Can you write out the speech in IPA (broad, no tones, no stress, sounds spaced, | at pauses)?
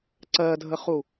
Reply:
ǀ ɜ dʱ ə χ u